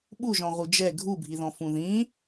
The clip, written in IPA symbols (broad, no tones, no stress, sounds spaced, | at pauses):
ɓ u ʒ ɔ̃ ʁ u d͡ʒ ɛ ɡʱ u bʱ i ð ɔ̃ f ũ ð ĩ